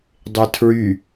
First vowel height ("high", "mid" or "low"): mid